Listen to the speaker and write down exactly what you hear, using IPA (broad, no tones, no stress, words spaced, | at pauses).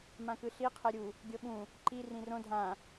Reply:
mãkɯɬi qʰɛɾʲu | ɡʲɤɓũ | ǃi rĩrõ dʱã